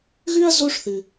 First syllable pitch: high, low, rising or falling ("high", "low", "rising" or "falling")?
high